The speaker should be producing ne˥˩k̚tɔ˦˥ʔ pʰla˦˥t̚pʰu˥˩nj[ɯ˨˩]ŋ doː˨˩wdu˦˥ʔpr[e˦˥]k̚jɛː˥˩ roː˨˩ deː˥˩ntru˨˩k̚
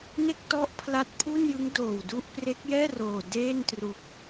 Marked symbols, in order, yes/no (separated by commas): no, yes